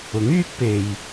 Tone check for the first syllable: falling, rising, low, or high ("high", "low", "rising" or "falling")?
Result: rising